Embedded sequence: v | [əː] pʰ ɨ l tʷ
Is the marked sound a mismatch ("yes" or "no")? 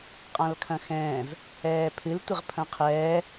yes